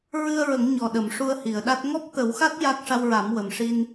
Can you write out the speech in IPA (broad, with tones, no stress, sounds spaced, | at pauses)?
ɹ ɨ˧ ə̯ ɹ ə˨˩˦ ŋ ɲ ɔ˨˩ ɗ ə˨˩˨ m ʂ u˧ ə̯ h i˨˩˨ ə̯ ɗ a˦˥ t̚ ŋ ɔ˦˥ p̚ t̪ ə˨˩˦ w x a˦˥ t̚ j a˦˥ k̚ ʂ a˧ w ɹ a˨˩˦ m w ə˨˩ m ʂ i˧ n